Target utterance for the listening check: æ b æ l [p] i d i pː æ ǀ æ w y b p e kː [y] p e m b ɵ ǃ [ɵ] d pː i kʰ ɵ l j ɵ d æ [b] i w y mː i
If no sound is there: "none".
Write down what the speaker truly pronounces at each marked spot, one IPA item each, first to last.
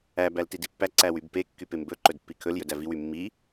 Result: t, y, ɵ, v

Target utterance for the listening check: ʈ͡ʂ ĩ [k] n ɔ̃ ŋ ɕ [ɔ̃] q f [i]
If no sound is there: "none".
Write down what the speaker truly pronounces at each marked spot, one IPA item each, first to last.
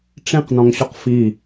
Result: q, ɔ, i

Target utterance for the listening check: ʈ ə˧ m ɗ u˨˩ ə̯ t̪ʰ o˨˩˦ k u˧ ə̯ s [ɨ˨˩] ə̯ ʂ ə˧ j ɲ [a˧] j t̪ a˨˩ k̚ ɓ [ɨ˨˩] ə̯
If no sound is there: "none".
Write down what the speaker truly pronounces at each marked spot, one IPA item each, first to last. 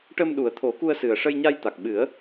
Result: ɨ˨˩, a˧, ɨ˨˩˦

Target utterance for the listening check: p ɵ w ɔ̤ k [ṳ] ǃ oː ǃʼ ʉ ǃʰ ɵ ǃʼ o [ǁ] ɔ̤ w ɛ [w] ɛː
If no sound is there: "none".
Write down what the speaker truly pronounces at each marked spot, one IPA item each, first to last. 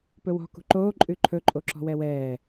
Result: ṳ, ǁ, w

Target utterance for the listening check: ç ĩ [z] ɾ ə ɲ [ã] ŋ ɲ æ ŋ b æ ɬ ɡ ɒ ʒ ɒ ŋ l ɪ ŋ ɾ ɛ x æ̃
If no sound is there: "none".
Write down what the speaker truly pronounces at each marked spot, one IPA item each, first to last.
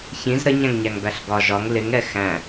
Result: z, æ̃

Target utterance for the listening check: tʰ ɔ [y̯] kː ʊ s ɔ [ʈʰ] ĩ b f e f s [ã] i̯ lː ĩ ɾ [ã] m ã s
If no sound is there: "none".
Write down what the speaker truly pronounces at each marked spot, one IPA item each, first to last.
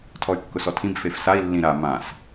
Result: y̯, tʰ, a, a

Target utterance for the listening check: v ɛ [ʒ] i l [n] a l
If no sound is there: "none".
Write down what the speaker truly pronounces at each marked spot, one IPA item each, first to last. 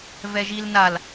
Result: ʒ, n

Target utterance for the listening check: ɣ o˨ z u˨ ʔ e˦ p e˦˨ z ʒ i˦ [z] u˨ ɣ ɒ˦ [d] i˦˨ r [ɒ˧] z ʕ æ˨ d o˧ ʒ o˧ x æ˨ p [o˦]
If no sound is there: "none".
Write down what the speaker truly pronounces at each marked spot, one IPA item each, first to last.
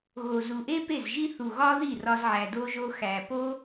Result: θ, ð, ɒ˧, o˦

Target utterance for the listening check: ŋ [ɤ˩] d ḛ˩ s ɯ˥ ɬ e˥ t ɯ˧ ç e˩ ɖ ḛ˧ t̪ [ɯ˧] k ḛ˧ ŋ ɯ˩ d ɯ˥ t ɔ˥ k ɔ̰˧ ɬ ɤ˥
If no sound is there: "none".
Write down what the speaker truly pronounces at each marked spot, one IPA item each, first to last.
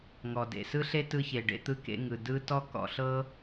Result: ɔ˩, ɯ˧

